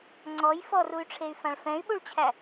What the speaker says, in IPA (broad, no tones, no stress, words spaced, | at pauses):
ŋ͡ǀɔj fɔruy̯ʈ͡ʂʰey̯fãɭ fɛ̃y̯ɓuɭt͡ɕʰæ